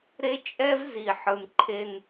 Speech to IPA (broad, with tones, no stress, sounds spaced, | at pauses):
ɾ e˦ t͡ʃʼ ɛ˦ v z i˨ ħ ɯ˨ n ǃʰ e˦ n